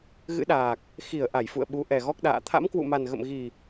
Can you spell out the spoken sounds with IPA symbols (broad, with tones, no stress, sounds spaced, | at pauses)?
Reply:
ɣ ɨ̰˧˥ ɗ aː˨˩ k̚ | x i˧˩ ə̯ ʔ a˧˩ j f ṵ˧˨ ə̯ ɓ u˨˦ ʔ ɛ˨˩ ɣ ɔ˦˥ k̚ ɗ a̰ː˧˨ t̪ʰ a̰˧˥ m k w ṵ˧˨ m a˨˩ n ɣ ə̰˧˨ m ɣ i˨˩